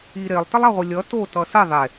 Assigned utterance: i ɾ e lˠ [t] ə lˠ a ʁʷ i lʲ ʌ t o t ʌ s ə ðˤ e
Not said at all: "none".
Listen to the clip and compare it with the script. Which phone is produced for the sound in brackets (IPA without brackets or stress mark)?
t